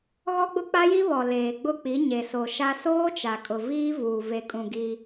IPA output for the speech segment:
ɣ ɔ˦ ɡ͡b ʊ˦ k͡p a˦ j i˦ β ɔ˨ l eː˨ ɡ͡b ʊ˦˨ k͡p i˨˦ ɲ e˨ s o˨ ʃ a˦ s oː˦ t͡ʃ a˨ kʼ ʊ˨ v iː˦ v uː˨ v e˨ kʼ ũ˨ ɡ i˦

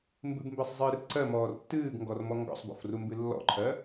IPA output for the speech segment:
m b ɨ b m b ɜ sˤ zˤ ɨː r ǀ ɜ m ɔː r tː ɨː ɡ ŋ ɡ ɔ r m ɔ ŋ ɡ ɔ̰ sˤ b ɔ̰ f r u m b ɨ lː ɔ̰ ǃʰ ɜ

